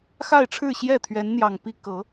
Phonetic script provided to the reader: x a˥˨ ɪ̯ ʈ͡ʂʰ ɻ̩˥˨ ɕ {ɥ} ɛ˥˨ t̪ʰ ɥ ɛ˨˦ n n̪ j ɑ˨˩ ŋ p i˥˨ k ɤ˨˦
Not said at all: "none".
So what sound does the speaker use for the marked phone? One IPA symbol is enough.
j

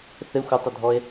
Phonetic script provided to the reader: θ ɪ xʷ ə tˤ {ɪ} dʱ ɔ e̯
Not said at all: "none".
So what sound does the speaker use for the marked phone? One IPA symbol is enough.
ə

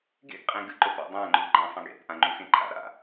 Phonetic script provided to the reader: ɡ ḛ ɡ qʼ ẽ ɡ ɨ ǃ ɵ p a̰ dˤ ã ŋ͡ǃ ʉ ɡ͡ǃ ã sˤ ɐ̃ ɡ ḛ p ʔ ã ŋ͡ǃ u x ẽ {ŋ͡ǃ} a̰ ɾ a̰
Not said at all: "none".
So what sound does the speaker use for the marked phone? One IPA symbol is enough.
ǃʰ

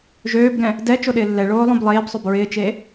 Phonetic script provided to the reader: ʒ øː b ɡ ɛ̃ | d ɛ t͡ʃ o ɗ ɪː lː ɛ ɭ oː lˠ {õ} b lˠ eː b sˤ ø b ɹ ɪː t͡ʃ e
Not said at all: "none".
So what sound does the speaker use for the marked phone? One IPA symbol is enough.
õ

